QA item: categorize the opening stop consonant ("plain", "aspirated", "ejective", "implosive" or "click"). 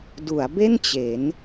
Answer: plain